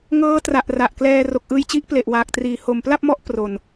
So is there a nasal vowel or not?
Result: no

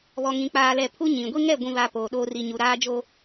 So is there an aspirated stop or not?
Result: yes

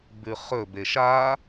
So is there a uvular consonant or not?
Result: yes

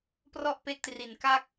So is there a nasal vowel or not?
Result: no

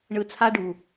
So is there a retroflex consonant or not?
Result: yes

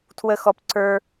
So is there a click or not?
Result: yes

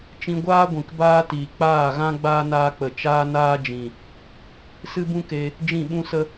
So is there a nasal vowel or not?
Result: yes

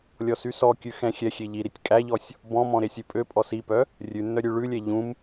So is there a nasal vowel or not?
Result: yes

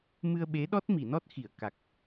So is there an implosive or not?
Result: yes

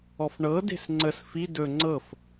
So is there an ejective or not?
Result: no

